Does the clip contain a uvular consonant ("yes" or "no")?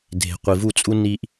yes